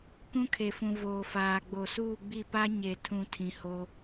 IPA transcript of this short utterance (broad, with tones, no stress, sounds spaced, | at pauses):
k ũ˦ kʰ e˨ f ũ˨ v oː˨ f aː˨ ɡ͡b o˨ s uː˦˨ ɡ͡b i˦˨ p a˦ ɲ e˨ tʰ ũ˨ tʰ ĩ˨ h o˦